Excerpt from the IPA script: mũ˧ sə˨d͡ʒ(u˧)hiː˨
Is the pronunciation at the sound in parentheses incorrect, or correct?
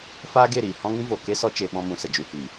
correct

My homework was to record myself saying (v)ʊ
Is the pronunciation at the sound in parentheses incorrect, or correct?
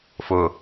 incorrect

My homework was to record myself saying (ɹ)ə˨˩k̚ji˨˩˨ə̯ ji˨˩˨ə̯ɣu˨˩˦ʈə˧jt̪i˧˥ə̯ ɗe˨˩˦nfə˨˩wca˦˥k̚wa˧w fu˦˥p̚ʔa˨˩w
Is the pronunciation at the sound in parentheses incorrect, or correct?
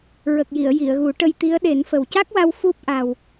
correct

